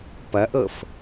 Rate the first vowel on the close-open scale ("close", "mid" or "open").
open